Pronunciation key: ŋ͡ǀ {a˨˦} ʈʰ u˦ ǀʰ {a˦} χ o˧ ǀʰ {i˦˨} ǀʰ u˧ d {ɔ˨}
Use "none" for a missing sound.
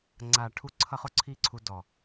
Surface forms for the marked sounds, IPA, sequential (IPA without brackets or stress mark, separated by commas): a˨, ʌ˦, i˦˨, ɔ˨